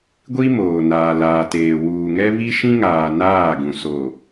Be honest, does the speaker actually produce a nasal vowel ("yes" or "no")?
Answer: yes